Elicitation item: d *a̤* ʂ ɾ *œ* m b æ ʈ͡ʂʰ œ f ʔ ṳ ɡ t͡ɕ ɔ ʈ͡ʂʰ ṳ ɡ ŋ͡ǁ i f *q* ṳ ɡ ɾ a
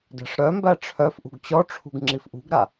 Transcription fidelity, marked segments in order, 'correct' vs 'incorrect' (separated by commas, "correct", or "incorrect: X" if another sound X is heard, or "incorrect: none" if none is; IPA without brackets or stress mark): incorrect: æ̤, correct, incorrect: ʔ